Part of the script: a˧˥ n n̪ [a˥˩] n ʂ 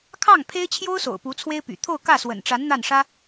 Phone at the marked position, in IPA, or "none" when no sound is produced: a˥˩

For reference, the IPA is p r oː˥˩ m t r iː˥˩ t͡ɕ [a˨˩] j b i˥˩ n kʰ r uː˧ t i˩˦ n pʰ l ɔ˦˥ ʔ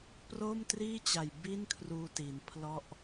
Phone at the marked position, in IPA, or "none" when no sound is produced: a˨˩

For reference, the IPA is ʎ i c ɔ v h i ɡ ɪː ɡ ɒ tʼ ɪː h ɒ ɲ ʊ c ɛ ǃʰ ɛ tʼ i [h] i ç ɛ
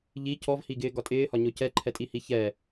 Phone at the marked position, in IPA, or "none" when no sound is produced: h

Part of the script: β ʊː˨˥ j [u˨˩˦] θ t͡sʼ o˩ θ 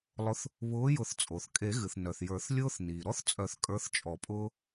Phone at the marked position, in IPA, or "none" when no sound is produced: ʊ˨˩˦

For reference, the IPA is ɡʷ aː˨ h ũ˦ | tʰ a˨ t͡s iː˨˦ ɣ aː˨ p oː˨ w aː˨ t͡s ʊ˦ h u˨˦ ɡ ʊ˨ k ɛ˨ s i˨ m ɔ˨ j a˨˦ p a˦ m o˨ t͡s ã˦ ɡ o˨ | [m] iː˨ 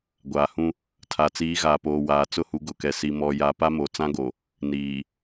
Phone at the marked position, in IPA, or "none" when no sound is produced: n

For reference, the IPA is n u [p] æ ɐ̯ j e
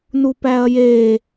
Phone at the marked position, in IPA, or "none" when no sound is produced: p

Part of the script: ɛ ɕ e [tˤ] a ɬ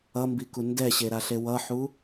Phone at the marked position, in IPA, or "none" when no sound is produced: ɾ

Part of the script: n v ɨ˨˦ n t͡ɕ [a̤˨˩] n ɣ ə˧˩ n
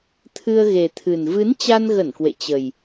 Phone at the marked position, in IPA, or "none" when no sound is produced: a˧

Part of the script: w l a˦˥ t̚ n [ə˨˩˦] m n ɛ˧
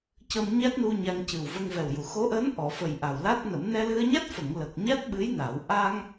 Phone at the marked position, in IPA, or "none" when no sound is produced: ə˨˩˦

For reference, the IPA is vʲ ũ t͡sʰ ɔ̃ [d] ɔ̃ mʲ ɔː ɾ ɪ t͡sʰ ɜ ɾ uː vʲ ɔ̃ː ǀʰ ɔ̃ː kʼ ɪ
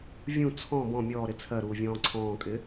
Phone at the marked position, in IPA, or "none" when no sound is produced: b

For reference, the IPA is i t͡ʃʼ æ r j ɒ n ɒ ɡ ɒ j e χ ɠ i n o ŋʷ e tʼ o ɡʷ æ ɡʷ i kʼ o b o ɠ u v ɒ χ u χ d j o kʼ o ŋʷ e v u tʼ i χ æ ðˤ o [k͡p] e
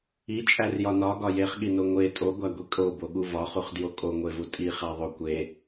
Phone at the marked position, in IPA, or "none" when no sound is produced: kʷ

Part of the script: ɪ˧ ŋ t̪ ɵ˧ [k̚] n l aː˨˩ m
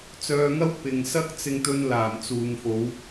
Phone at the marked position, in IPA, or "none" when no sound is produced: none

